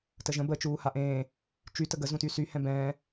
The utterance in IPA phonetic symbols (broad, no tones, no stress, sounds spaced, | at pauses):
t ə ʒ ə̃ b ə t͡ʃ uː h a ʔ ẽː | t͡ʃ y t ə ɡ ə z ũ t y s y h ɛ̃ b ɛ̃ː